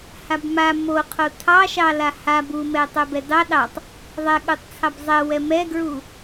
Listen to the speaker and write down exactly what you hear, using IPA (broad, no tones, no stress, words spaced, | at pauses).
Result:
habma moqʰo tʰɑʃɑla ha bumɛ tˤɛbɛdɑ ɗɑtˤ | ðˤɛɠutˤt͡sʰɑb zˤɛ wɛmɛɡɹu